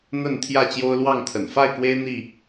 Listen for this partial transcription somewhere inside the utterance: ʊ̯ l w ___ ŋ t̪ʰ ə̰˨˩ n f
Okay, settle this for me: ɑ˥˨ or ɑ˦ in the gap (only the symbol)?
ɑ˥˨